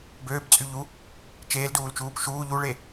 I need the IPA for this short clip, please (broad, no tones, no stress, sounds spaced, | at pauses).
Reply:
b øː b t͡sʼ y ʎ u | t͡ʃ eː l d uː l t͡ʃ uː p ʃ uː ʎ u ɭ e